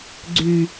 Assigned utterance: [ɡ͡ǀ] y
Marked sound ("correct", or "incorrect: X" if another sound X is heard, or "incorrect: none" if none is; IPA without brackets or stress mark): correct